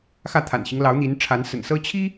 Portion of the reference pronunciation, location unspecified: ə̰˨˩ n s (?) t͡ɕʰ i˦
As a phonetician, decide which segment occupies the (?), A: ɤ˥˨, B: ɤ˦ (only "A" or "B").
B